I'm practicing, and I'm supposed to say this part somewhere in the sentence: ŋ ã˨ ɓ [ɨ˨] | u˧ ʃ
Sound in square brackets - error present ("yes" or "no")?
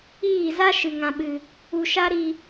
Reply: no